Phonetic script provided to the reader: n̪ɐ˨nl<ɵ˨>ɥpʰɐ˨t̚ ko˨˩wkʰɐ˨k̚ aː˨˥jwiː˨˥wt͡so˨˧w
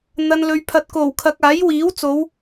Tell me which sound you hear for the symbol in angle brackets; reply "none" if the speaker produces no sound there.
ɵ˨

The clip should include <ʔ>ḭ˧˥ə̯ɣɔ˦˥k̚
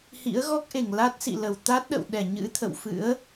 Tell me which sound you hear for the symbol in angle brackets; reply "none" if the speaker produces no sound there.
h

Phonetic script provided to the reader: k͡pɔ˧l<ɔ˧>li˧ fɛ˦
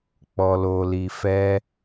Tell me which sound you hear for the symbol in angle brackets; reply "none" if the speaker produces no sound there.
o˧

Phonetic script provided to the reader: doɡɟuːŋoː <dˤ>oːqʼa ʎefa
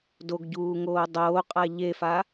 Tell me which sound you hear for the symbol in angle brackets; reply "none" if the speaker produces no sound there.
dˤ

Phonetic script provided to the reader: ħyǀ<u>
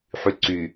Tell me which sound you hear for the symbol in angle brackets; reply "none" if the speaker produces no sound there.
y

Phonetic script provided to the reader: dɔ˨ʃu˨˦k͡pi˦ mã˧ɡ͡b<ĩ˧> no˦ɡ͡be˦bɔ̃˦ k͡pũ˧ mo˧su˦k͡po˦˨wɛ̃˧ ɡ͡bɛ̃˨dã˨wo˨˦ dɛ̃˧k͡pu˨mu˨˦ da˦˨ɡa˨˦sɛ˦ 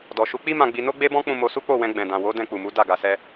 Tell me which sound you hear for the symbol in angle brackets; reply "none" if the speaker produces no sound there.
i˧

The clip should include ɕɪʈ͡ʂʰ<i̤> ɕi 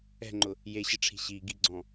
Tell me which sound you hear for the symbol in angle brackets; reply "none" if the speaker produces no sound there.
i̤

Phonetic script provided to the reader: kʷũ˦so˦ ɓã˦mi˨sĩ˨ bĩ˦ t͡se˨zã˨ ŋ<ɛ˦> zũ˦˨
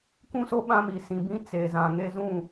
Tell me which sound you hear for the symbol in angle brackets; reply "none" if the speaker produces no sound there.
e˦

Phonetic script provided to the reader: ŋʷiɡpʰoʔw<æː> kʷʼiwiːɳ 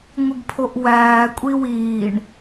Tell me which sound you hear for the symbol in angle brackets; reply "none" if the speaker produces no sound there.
æː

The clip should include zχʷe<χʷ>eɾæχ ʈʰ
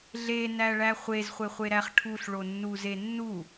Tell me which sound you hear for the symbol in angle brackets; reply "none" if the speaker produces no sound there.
χʷ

